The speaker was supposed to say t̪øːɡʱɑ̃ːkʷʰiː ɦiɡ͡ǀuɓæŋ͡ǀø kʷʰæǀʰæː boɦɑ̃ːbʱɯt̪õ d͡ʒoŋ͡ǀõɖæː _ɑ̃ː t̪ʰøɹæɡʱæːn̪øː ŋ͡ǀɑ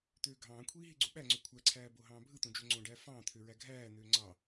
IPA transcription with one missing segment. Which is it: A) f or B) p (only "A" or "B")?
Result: A